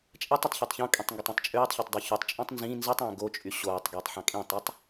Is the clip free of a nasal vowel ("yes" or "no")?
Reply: no